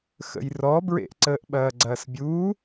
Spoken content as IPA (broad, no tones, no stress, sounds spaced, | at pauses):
x ə̰ j r ɔ b ɹ ḛ ʔ ǀ əː ʔ ɓ ɐː ɡ͡ǀ ɐː s bʲ uː